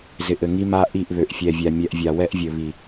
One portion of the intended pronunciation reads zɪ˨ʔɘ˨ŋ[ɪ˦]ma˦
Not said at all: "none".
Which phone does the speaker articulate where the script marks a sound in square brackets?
i˦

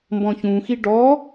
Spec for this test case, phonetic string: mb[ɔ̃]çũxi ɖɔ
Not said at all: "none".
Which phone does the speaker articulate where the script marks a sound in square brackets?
ɔ̃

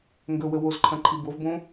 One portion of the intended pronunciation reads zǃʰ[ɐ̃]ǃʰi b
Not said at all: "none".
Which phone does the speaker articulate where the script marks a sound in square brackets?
ɐ̃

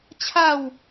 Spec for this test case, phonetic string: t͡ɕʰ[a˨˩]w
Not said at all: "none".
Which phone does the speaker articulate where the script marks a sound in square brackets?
a˥˧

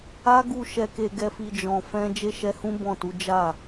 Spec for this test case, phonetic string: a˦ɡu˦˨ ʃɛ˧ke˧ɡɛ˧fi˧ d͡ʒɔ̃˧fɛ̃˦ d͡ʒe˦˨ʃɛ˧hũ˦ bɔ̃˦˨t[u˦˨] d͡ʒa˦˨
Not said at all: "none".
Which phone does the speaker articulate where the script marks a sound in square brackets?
u˨˦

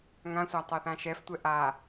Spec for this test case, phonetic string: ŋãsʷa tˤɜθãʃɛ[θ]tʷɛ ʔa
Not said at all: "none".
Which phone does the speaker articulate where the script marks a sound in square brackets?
f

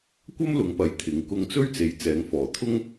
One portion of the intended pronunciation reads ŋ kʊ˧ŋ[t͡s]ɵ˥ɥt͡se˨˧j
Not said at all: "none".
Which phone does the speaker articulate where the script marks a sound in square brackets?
t͡s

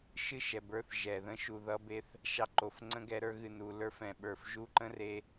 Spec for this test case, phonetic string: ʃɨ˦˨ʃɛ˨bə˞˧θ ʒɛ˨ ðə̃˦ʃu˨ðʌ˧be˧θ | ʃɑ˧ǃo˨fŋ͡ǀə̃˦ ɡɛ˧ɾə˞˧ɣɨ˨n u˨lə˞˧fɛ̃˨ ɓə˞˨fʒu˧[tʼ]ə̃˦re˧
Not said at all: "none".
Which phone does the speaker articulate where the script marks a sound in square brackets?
ǃ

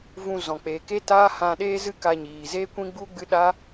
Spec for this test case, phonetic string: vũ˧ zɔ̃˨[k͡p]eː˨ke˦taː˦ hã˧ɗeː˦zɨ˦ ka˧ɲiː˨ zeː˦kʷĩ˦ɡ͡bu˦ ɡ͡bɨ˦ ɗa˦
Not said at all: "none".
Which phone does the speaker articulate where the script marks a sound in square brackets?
k͡p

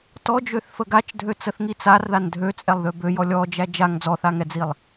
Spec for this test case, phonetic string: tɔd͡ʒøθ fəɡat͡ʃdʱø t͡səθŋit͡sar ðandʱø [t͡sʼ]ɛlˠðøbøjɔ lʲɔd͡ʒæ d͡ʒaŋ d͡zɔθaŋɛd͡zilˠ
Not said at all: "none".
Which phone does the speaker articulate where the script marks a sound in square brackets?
t͡sʼ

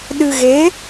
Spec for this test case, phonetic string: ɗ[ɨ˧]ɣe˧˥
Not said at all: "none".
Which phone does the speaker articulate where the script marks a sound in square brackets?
ɨ˧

